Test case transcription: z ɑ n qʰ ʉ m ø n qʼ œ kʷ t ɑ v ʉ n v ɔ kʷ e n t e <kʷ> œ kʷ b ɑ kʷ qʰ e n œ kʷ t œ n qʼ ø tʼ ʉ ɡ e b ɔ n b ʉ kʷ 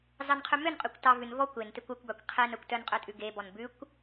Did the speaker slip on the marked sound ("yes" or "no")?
no